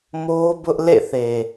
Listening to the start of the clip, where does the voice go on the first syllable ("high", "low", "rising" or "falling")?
high